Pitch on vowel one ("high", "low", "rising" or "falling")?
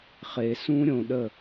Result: low